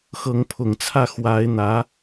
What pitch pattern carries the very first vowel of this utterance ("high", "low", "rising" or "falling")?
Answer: rising